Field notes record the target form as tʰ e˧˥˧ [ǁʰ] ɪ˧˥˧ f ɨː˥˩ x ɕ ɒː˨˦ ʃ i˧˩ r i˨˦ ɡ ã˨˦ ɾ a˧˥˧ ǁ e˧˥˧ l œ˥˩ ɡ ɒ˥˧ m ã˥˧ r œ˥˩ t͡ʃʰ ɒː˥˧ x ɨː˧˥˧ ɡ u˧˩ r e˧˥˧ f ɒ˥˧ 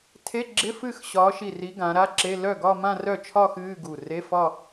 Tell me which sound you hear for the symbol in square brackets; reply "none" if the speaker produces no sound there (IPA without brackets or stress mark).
ɡ͡ǁ